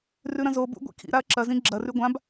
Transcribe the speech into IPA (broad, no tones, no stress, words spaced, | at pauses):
rʉɾɐ̃zobṵ ɡʷḭkʰḭɾaɐ̯ ǁɐzĩ ɡ͡ǁɐrʉ ɡʷãb